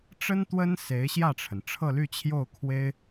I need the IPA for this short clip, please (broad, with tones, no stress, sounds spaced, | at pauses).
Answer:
ʈ͡ʂ ə˥ n t̪ w ə˥ n s e˧˥ ɪ̯ ɕ j ä˥˩ ʈ͡ʂʰ ə˩ n ʈ͡ʂʰ ɤ˥˧ l y˥˧ t͡ɕʰ j o˥˩ ʊ̯ kʰ w e˥ ɪ̯